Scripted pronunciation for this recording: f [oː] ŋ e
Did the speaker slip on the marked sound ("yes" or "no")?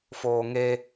no